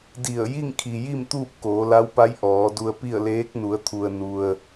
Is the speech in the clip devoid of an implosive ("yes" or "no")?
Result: yes